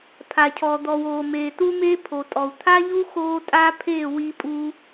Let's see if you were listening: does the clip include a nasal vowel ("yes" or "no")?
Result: no